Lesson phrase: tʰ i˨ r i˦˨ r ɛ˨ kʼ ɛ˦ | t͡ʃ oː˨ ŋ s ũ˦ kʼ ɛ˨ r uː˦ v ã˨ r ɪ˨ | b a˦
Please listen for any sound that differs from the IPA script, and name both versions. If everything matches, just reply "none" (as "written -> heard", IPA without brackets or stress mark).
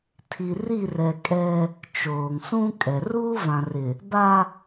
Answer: none